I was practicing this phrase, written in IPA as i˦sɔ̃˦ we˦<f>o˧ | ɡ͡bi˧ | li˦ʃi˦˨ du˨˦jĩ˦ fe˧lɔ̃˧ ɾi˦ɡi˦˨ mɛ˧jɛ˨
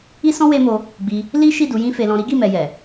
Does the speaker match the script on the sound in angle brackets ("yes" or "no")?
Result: no